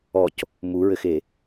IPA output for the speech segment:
ɔ c | m u ɹ ɘ x e

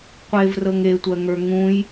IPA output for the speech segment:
qʷ e v r ɤ ŋ e tʷ ɜ ŋ ə˞ ŋ ũ j

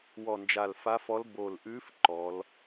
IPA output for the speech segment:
w ɔ˨˩ n d͡ʒ a˨˩ l f a˧˥ f ɔ˧˥ l b o˨˩ l ʔ ʉ˧˥ f ǃ ɔ˩˧ l

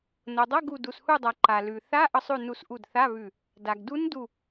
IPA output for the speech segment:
n o˩ dˤ ʌ˧˥˧ ɡ u˧˩ d u˩ s h u˧˩ dˤ a˩ ǃ a˩ l ʉ˩ θ a˧˥˧ ʔ ʌ˧˩ sˤ ʉ˧˩ n u˧˩ s ʔ u˧˩ d θ a˧˥˧ β ʉ˧˩ | d a˩ ɡ d u˧˥ n d u˧˩

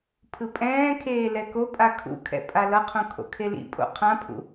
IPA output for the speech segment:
pʰ ɯ pʼ ɛ̃ː kʰ eː l ɛ k o pʼ a kʰ ṵ kʰ ɛ̰ pʼ a l ʌ qʰ õ kʰ o̰ kʰ e l ḭ pʼ o̰ qʰ ã pʰ ṵ

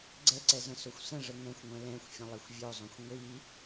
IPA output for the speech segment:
ɡ͡ǀ ɛ ǀ ɛ z ə̃ s o xʷ s ə̃ ʐ ə ŋ ɛ̃ xʷ ŋʷ ɛ̃ l ɛ̃ xʷ fʲ ə̃ lˠ e xʷ vʲ o zˤ õ xʷ ŋʷ i

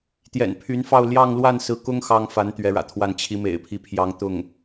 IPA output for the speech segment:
t̪ j ɛ̰˨˩ n pʰ y˧˥ n f ɑ˥˧ ʊ̯ l j ɑ˥˧ ŋ l w a˥˩ n s ɹ̩˧˥ k ʊ˥ ŋ x ɑ˥ ŋ f a˧˥ n t̪ ɥ ɛ˧˥ ɻ ä̰˨˩ t̪ʰ w a˥˩ n t͡ɕʰ i˧˥ m ḛ˨˩ ɪ̯ pʰ i˧˥ pʰ j ɑ˧˥ ŋ t̪ ʊ˥˩ ŋ

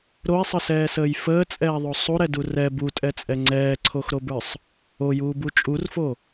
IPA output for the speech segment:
ɾ o e̯ sˤ ə s ɛː s əː j f əː t͡sʼ ɛː ðˤ o sˤ u ɾ ɛ d u r ɛ b u tʼ ɛ t͡sʼ ɛ ŋ͡ǀ ɛː ǀʰ o x ɾ o b ə˞ sˤ | o j uː b u t͡ʃʼ u r f o

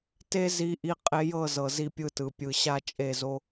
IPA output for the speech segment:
t e˦ z i˧ ʔ i˧ qʼ e˧ j ɤ˦˨ z ɤ˨ z i˦ pʲ ɯ˦ t ɯ˨ pʲ ɯ˨ ɕ a˦˨ t͡ʃʼ e˦˨ z o˦

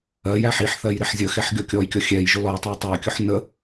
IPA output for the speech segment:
ɜ j æ ħ i ħ θ ɜ j ɾ ɪ ħ zʲ ə x ɛ ħ ɡʲ ɔ kʲ ɔ j kʲ ɔ xʲ ɛ j ʒ ʊ l ɔ j tˤ ɑ tˤ ɜ kʲ ʊ ħ n ə

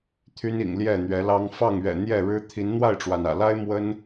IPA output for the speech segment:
t̪ʰ y˦ n ḭ˨˩ ŋ l j ɛ˥˨ n̪ ɥ ɛ˨˦ l ɑ˦ ŋ f ɑ˥˨ ŋ ɥ ɛ̰˨˩ n̪ j ɛ˥˨ ɻ ɻ̩˦ t̪ʰ i˨˦ n n̪ w a˥˨ ɪ̯ ʈ͡ʂ w a˩ n ä̰˨˩ l a˦ ɪ̯ m w ə˦ n

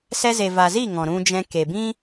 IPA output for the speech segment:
s ɛ˧ z e˨ v a˨ z i˦˨ ŋ ɔ̃˨ ɾ ũ˧ d͡ʒ ɛ̃˧ k e˨ b ĩ˦

